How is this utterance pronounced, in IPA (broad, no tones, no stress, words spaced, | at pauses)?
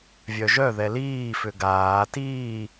vʲœʒœ ðɛliː fʏɡaː tiː